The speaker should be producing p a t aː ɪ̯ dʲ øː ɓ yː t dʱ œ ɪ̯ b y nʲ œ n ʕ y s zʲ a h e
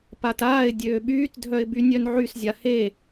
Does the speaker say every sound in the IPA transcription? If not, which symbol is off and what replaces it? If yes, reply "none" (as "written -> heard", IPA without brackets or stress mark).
none